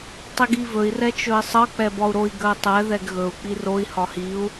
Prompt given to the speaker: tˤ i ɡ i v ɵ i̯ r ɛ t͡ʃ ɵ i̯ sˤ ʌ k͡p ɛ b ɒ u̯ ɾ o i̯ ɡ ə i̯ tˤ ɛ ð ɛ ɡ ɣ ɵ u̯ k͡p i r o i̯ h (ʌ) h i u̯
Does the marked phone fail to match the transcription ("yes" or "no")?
yes